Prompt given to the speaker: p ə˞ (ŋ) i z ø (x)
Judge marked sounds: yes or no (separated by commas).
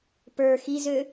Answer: no, no